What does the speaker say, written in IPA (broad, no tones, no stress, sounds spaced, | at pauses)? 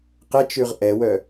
q ɛ t͡ʃ ʉ ʁ ʔ ɛ w œ